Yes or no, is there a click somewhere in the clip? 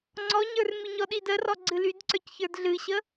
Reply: yes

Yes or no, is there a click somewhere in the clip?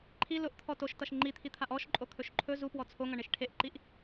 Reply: yes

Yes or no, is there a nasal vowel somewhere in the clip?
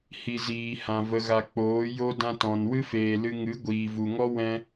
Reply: yes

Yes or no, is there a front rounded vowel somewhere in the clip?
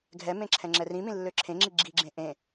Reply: yes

